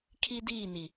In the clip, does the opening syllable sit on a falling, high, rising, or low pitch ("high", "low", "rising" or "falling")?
high